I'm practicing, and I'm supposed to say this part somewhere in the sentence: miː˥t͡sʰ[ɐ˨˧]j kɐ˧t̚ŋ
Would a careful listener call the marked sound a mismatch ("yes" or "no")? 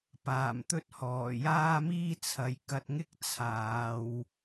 no